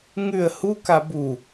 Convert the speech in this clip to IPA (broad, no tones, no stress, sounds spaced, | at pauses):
ŋ ʉ ə̯ h u k a b u